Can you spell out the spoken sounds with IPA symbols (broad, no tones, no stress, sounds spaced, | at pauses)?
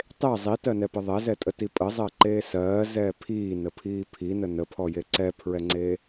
tˤ e zˤ i t ɜ n ɛ p ə ðˤ ɛ z ɛ tʼ ə t i pʼ ə zˤ ɜ ǃ eː s ɜː z ɛː pʰ iː n ə pʰ iː pʰ i n ə n ə pʰ ɔ j e ǀ ɛ pʰ ɹ ɛ ŋ͡ǀ eː